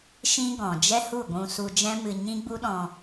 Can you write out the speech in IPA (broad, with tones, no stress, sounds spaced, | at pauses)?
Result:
ʃ ĩ˦ ɡ ɔ̃˨ d͡ʒ ɛ˦ h u˦˨ ɡʷ ũ˧ s u˧ d͡ʒ ɛ̃˦ m ɨ˧ ɲ ĩ˦ ɡ͡b u˦ ɗ ɔ̃˧